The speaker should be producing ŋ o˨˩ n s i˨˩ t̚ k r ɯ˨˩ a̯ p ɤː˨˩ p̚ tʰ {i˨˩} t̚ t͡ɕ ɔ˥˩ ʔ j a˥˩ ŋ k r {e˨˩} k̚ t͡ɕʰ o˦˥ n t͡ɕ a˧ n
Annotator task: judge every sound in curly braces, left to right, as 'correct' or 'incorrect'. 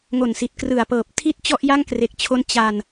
incorrect, correct

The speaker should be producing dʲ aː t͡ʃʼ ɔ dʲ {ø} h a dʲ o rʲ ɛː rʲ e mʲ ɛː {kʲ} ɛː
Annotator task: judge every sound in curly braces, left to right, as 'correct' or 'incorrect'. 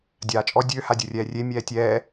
correct, incorrect

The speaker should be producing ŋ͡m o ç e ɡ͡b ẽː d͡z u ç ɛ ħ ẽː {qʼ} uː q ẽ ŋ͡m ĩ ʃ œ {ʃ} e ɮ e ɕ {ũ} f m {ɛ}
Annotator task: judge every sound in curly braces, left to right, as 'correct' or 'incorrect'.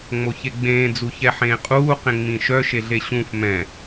correct, correct, correct, incorrect

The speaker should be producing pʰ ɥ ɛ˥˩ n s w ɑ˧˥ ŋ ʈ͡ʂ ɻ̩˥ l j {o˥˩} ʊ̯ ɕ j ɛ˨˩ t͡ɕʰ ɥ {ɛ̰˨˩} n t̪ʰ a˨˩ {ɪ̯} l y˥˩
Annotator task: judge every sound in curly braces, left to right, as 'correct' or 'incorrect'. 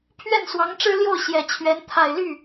correct, incorrect, correct

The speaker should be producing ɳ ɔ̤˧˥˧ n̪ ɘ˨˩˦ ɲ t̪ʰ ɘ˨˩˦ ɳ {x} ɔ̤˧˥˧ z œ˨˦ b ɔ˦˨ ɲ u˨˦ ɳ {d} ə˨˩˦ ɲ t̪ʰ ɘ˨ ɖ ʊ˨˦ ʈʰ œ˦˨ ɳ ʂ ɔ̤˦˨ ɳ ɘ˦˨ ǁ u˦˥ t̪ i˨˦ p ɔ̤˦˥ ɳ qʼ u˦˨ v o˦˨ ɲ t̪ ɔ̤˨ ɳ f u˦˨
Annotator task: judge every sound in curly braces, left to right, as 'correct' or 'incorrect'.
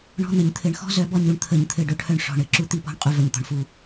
correct, incorrect

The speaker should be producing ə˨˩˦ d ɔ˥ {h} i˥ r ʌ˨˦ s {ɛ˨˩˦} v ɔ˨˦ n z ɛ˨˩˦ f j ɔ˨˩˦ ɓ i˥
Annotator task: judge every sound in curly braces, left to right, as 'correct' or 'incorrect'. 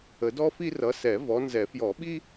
incorrect, correct

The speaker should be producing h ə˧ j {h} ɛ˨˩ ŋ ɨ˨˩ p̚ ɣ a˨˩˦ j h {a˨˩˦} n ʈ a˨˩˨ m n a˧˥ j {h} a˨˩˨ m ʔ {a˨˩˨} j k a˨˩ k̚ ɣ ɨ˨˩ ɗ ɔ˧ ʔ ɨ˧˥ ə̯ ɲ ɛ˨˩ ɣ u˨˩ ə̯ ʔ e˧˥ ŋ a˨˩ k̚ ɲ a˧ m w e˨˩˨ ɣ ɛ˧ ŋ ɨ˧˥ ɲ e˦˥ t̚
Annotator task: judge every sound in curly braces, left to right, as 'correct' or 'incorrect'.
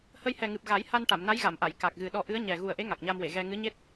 correct, incorrect, incorrect, correct

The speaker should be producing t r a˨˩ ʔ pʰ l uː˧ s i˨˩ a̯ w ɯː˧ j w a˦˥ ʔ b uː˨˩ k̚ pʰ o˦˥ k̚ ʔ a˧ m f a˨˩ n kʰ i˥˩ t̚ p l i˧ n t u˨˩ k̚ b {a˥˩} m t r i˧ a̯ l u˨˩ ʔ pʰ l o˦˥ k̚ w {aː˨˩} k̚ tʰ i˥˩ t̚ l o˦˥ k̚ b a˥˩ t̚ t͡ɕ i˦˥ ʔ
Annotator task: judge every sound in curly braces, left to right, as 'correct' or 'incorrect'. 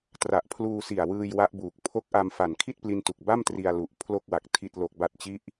correct, incorrect

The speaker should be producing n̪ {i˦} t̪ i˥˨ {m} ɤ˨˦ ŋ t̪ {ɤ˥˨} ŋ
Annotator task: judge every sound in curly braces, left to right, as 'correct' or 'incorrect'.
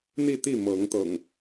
incorrect, correct, incorrect

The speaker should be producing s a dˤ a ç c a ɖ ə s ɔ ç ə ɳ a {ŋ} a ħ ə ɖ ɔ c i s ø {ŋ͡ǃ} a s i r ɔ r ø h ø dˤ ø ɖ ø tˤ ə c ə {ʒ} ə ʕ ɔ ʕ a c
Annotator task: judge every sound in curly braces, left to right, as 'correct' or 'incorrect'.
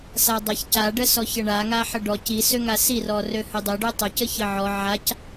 correct, incorrect, incorrect

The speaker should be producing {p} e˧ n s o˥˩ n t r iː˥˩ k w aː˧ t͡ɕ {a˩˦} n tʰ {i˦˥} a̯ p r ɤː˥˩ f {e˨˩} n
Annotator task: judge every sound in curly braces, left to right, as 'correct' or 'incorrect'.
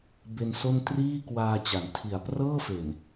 incorrect, correct, incorrect, correct

